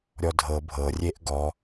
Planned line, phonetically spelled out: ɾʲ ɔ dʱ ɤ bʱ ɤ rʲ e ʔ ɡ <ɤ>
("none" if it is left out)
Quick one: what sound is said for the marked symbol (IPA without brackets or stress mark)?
ɔ